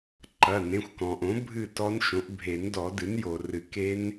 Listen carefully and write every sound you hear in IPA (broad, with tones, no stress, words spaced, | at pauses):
ǃɐ˩˧˩nẽ˩˧˩xʷkɔ̃˩ʔõ˩˥ bʱɨ˥˨tɔ˦˥nʃõ˩˥ʔ bʱe˨˩˦ndɔ˨˩˦dɨ˩˥n jo˩rɨ˨˩˦ ke˦˥n